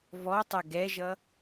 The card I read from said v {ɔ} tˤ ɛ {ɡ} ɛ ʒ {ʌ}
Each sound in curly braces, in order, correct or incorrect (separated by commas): correct, correct, correct